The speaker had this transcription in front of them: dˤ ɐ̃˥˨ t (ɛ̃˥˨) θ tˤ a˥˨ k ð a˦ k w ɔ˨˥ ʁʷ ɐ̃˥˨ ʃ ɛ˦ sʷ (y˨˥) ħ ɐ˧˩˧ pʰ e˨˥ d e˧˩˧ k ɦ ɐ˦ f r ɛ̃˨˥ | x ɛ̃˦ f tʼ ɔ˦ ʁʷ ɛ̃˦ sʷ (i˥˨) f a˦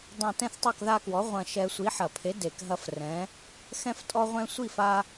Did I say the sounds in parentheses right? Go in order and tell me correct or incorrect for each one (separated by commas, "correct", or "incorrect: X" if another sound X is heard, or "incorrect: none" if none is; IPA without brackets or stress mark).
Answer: correct, incorrect: i˨˥, correct